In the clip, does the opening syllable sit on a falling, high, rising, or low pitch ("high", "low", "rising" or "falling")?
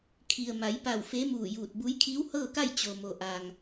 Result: low